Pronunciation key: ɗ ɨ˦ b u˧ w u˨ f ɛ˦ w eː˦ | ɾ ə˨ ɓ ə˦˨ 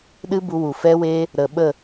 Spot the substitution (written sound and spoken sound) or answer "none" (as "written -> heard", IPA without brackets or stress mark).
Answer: none